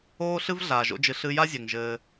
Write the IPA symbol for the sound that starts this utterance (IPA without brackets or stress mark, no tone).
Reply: oː